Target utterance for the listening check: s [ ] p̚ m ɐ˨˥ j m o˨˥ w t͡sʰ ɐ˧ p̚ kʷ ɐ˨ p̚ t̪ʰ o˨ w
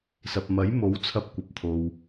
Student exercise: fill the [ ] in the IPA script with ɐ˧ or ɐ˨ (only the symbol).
ɐ˨